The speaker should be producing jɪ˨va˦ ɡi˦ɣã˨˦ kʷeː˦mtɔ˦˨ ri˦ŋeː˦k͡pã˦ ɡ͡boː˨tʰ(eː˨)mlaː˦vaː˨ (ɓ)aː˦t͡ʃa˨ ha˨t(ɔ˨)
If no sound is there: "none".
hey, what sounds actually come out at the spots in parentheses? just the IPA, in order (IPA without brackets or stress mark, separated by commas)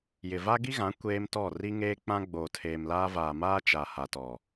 eː˨, m, ɔ˨